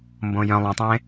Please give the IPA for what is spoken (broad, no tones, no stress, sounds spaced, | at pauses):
m b õ j œ̃ lˠ õ tˤ ẽ